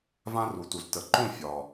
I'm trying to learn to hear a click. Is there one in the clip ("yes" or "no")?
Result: yes